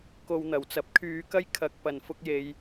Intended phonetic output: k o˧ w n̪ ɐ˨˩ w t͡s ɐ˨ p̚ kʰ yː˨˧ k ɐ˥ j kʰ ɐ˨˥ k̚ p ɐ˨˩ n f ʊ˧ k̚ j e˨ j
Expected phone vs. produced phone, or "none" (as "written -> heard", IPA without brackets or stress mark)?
none